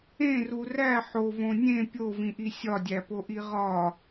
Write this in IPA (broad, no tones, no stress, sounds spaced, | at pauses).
ẽ r u r æ ħ o v õ nʲ ẽ pʲ o v ĩ ʔ i sʲ ɒ dʲ æ p o ʔ i ʁ ɒ